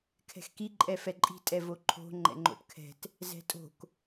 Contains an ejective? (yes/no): yes